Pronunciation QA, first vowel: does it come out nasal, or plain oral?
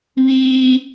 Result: oral